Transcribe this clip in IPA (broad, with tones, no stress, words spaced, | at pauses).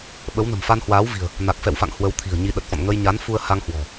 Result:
ɓə˨˦wnə̤˨˩mfa˧n hwaː˨˦wvi̤˨˩ə̯ | na˨˩k̚fɛ̰˧˨wfa̰˧˨ŋ hwə˨˦wt̪ʰi̤˨˩ə̯ɲi˧ ɗə˨˩t̚fɔ̰˧˨n ŋə˧jɲa˨˦n fu˧ə̯ha˧ŋhwɔ̤˨˩